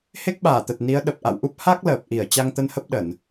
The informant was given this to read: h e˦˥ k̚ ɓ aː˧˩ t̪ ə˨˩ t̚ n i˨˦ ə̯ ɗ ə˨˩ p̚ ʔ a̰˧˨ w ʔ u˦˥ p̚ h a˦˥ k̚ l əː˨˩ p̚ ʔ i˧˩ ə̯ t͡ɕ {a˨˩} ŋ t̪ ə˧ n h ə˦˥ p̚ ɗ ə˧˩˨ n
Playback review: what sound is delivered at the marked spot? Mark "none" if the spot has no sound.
a˧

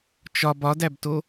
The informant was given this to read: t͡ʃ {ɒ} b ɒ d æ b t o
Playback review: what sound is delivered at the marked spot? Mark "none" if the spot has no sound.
ɒ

